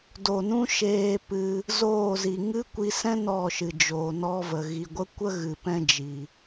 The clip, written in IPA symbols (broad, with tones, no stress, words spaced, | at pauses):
do˨nũ˦ ʃeː˧pɨ˧ | zoː˦˨zi˨ ŋɨ˦kʷi˧sɛ̃˦ nɔ˦˨ ʃɨ˨d͡ʒoː˨nɔ˦və˨ ɣi˨ɡʷə˦kʷə˦ ɣɨ˨ pɛ̃˦d͡ʒi˨